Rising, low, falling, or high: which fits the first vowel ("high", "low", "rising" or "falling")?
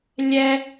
high